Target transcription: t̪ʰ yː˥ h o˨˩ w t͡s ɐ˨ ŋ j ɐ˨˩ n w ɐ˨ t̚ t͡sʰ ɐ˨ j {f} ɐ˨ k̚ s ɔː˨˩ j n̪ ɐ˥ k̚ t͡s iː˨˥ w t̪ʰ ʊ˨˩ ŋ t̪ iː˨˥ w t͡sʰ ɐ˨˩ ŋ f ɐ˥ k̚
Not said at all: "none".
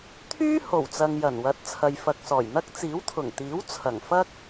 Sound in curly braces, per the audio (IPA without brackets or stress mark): f